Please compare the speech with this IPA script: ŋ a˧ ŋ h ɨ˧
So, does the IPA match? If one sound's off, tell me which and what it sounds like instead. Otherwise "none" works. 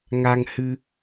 none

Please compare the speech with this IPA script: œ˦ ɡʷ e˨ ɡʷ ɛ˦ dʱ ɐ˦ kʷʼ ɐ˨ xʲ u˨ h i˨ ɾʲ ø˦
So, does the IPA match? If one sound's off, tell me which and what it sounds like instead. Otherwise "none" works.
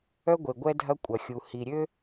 none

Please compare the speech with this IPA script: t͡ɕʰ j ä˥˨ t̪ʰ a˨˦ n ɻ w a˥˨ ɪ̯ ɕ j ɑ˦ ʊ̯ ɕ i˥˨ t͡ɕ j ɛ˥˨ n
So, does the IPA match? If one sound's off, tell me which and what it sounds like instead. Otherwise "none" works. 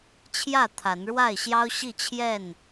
t͡ɕ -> t͡ɕʰ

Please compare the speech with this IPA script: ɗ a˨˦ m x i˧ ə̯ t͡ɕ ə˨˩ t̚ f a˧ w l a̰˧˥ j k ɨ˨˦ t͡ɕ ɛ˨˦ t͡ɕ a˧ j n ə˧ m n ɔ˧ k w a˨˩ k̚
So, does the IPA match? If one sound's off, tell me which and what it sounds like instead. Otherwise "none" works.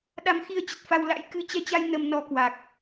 none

